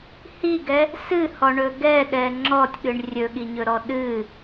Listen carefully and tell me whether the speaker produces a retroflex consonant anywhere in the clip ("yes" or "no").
yes